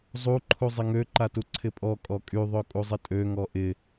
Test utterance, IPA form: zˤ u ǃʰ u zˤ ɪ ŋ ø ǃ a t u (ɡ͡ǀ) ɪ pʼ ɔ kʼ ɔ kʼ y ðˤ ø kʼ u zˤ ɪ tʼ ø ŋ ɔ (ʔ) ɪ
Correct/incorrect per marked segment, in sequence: incorrect, correct

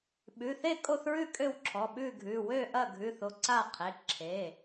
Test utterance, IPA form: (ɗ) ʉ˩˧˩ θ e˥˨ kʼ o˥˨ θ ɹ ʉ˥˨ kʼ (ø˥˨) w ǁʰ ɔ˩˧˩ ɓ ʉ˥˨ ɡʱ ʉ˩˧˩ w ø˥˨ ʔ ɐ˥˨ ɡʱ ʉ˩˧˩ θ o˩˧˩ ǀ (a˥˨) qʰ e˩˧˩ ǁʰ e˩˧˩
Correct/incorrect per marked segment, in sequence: incorrect, correct, correct

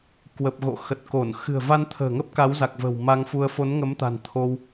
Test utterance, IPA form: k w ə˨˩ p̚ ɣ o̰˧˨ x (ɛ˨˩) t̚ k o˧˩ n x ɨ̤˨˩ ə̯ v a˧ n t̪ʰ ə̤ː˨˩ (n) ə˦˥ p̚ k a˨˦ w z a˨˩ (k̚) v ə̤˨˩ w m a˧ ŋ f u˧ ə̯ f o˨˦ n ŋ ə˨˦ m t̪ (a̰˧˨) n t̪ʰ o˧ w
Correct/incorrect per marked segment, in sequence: incorrect, incorrect, correct, incorrect

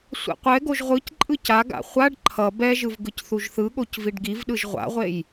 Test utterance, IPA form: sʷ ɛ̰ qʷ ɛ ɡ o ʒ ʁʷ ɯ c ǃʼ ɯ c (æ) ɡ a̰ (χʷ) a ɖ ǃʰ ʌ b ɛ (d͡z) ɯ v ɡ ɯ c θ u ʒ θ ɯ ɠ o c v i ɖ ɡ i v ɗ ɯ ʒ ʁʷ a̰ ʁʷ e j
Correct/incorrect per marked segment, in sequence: incorrect, correct, incorrect

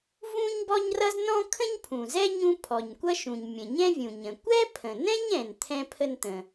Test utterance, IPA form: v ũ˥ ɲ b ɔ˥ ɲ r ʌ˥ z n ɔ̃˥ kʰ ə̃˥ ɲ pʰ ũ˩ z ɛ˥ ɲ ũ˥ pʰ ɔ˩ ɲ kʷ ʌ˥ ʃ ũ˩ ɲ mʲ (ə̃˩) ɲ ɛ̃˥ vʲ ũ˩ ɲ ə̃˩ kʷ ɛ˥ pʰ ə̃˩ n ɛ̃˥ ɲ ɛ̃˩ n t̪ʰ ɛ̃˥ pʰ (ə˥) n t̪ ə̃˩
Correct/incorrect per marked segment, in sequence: correct, correct

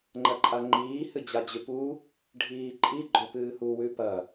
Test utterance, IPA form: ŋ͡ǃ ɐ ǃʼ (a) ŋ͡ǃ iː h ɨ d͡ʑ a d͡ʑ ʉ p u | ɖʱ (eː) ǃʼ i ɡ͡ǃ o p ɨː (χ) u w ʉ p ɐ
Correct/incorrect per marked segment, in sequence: correct, incorrect, incorrect

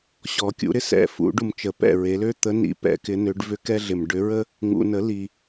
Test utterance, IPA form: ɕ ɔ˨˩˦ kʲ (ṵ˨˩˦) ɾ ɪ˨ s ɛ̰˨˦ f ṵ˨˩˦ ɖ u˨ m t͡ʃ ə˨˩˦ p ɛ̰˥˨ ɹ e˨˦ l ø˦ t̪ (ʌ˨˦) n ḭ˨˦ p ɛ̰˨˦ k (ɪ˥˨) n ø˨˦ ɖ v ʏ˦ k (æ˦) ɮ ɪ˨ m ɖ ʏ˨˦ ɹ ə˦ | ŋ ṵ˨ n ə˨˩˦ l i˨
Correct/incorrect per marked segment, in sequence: correct, incorrect, incorrect, incorrect

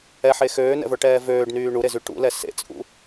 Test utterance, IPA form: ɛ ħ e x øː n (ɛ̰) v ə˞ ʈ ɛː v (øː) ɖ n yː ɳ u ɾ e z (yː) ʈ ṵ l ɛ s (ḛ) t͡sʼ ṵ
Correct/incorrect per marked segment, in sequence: correct, correct, incorrect, correct

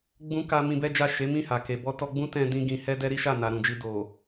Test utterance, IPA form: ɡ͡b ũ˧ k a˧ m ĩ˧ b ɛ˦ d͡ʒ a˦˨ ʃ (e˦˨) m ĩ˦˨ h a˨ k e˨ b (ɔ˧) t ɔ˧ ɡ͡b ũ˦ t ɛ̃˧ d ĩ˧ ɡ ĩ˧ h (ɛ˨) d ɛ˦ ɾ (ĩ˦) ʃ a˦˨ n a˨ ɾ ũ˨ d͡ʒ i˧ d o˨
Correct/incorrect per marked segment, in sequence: incorrect, correct, incorrect, incorrect

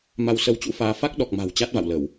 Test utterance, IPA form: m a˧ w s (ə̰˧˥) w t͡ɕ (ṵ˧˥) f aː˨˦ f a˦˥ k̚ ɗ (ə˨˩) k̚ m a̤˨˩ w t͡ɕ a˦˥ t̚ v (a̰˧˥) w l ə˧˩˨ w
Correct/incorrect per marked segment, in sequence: incorrect, correct, incorrect, incorrect

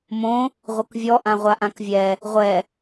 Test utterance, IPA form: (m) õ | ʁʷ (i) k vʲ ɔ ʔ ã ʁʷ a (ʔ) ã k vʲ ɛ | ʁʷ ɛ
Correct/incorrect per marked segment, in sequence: correct, incorrect, correct

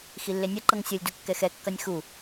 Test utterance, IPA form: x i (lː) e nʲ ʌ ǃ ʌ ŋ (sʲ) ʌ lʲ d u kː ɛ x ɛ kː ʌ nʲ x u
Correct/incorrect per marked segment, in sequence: correct, correct

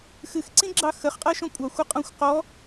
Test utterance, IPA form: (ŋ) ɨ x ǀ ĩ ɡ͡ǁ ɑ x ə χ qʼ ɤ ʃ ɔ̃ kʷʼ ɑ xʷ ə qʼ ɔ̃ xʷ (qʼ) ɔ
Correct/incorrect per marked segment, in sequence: incorrect, incorrect

